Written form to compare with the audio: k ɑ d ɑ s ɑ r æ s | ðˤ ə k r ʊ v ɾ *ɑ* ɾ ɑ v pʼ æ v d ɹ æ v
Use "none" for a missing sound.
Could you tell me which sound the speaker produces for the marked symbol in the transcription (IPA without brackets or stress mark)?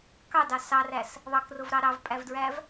ɑ